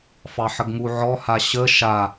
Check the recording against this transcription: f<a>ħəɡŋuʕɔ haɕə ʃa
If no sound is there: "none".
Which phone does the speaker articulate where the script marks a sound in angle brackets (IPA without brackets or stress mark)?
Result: ɑ